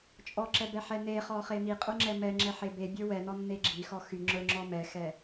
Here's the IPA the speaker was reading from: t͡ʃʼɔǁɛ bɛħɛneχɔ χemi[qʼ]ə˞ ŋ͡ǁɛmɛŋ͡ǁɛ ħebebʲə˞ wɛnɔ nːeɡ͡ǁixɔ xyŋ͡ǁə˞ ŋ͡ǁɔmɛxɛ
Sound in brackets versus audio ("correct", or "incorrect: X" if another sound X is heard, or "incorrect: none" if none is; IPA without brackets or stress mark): correct